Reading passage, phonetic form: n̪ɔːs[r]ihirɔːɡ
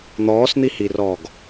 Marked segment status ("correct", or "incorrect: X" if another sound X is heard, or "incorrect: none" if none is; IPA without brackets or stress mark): incorrect: n̪